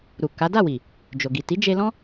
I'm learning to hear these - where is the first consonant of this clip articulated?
tongue tip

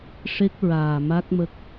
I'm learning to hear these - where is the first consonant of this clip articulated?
retroflex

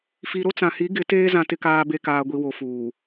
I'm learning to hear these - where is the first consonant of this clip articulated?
lips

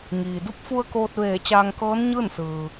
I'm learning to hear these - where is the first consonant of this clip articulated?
velum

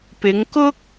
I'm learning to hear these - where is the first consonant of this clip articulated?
lips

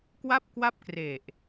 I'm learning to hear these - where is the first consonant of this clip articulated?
velum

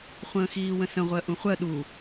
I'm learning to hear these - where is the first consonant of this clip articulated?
uvula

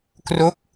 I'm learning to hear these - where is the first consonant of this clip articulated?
velum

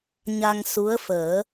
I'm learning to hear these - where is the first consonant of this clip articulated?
palate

